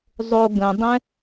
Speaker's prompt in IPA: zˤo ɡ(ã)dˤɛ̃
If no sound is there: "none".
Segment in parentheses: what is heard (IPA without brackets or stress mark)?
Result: ə̃